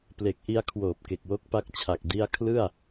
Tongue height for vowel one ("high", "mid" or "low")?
mid